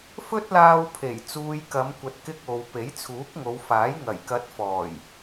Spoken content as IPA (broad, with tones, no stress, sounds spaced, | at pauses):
f ɵ˥ t̚ l aː˧ w pʰ e˨˩ j t͡s uː˨ j k ɐ˨˧ m kʷ ɐ˨ t̚ k ɪ˧ k̚ o˨ w p e˨˥ j t͡sʰ uː˨˥ k̚ ŋ o˨˧ w f aː˨˥ j ŋ ɐ˨˩ j k ɐ˨˥ t̚ f ɔː˨˩ j